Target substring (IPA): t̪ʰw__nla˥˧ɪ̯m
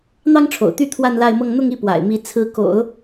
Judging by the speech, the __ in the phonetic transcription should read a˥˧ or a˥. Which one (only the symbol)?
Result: a˥˧